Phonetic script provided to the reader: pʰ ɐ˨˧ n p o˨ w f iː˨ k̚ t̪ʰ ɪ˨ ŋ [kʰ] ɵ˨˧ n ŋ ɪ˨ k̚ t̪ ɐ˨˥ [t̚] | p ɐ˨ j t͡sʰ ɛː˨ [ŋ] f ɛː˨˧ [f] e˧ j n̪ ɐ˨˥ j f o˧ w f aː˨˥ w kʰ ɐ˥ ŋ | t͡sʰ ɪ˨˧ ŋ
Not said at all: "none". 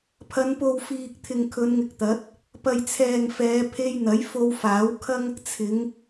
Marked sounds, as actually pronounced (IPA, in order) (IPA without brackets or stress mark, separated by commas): kʰ, t̚, ŋ, pʰ